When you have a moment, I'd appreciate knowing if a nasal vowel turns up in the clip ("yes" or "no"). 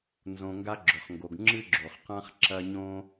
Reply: yes